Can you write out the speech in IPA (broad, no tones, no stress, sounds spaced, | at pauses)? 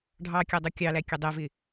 ɖʱ ɑ kʲ ɑ dˤ u kʲ ɑ l æ kʲ ɛ dˤ ɛ v ɪ